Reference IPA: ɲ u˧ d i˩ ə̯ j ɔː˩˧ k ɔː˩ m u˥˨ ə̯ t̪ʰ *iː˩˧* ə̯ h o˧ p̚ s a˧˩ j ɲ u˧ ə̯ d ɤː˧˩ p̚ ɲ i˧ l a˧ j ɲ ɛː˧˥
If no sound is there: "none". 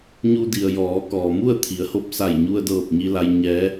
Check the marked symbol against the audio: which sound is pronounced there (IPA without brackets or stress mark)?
i˩˧